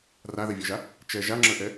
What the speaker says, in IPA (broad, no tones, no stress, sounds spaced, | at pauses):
r a ð ɛ vʲ ə˞ ʒ a | t͡ʃ ɛ ʒ a ŋ͡ǁ ə˞ ʔ ɛ